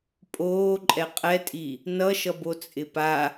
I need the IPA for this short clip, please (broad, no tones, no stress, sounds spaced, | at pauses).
pʼ oː ǃʼ ɛ qʼ ɛ tʼ i | n ʌ ʃ ʌ b o t͡sʼ ɪ p a